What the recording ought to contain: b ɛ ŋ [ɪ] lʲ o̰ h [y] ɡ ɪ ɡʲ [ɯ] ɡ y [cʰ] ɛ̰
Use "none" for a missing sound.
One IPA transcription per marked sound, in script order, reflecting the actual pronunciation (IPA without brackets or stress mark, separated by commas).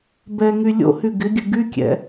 y, y, ɯ, kʲ